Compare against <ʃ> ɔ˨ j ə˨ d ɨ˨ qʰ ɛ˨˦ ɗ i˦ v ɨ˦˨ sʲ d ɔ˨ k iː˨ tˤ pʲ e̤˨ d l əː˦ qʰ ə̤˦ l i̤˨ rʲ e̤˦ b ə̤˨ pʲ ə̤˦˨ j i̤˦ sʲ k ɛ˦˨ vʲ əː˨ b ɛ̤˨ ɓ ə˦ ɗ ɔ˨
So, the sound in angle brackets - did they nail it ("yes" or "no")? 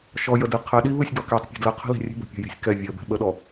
yes